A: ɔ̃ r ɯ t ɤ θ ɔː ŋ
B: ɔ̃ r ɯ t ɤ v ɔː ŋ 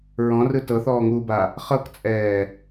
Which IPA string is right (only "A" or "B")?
A